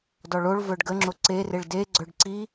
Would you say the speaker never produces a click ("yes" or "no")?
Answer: no